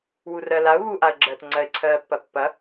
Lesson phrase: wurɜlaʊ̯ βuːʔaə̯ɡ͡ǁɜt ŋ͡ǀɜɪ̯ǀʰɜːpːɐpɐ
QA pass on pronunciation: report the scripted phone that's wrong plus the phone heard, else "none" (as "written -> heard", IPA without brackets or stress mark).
p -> pː